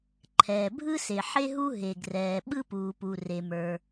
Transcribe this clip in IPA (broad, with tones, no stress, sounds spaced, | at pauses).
ǃʰ ɛː˩ bʱ ɯ˥ s e˩ ħ e˥ ɦ u˥ ɦ e˩ ɡ r ɛː˩ ɓ ɯ˥ p uː˩ p u˩ r e˩ m ə˞˩